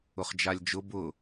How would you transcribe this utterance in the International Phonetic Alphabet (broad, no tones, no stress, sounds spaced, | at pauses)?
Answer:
ʊ χ d͡ʒ a lʲ d͡ʒ ʊ b ʊ